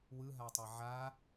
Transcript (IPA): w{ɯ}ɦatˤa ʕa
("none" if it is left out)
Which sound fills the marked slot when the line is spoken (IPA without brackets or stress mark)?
ɯ